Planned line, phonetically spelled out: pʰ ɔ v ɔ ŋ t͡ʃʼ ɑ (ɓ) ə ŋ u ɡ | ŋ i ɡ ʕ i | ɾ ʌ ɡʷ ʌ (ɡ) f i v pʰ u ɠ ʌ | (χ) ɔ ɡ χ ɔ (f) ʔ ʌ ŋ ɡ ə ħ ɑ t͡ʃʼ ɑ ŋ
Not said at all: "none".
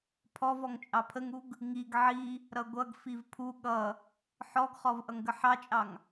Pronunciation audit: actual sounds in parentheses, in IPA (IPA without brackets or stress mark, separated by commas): pʰ, ɡ, ħ, v